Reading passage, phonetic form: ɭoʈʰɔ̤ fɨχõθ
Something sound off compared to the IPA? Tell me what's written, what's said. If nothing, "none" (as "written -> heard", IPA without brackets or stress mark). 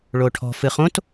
θ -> t